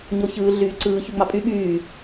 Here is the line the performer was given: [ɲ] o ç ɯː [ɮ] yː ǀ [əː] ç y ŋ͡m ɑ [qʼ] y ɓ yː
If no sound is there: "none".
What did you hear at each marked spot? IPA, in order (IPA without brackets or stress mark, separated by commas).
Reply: ɲ, ɮ, ɯː, pʼ